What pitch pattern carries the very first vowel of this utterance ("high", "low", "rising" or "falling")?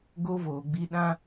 high